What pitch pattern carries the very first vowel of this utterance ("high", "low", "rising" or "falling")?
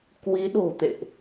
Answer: rising